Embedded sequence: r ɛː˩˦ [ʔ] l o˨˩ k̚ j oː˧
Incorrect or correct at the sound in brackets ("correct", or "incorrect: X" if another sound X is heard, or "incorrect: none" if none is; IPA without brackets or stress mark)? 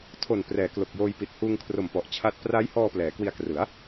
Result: incorrect: k